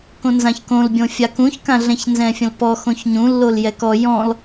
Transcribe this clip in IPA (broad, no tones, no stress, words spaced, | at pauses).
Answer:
kõnzãçkõlbʲõ fʲakũçkãɮɛ̃ç nzɛ̃fʲə̃lpɔxõç ɲũlːol jɛkɔ jɔ̃l